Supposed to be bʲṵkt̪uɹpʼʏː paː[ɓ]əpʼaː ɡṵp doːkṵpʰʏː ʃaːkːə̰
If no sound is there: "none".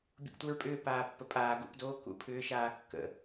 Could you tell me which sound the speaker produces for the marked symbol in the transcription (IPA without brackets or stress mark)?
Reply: pː